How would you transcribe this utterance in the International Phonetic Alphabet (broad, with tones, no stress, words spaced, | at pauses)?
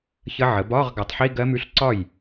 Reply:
çə˦˥ʕə˩˥ bɒː˧˥˧ʁɡa˩˥tˤħi˧˥˧ ɡɜ˦˥mʉ˧˥˧ɬǀɒ˥˩j